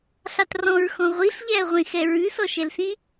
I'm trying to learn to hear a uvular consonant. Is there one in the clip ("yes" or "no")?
yes